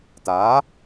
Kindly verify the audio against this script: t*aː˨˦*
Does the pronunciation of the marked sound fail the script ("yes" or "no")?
no